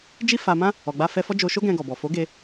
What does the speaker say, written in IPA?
d͡ʒi˦fa˧mã˦ | ɔ˨ɡ͡ba˧ fɛ˧fɔ˦d͡ʒo˧ ʃo˦ɡɛ̃˧ɡɔ˨bɔ˨ fo˨˦ɡe˧

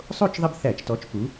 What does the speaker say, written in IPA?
sˤo˥˨t͡ʃðˤɪ˦bθæ˧˩˧t͡ʃtɔ˩˥t͡ʃ pu˩˥

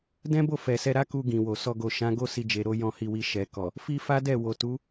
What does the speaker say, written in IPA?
dɛ̃˦bo˦˨ fɛ˨sɛ˧ɾa˦ku˧ ɡĩ˨wo˨ sɔ˧ɡo˨ ʃã˨˦ɡo˦si˧ d͡ʒe˧ɾo˦ jɔ̃˧hi˧wi˧ ʃɛ˨kɔ˨ | fi˦fa˦dɛ˦˨ wo˨tu˨˦

